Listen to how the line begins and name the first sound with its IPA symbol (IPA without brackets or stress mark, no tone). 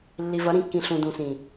lː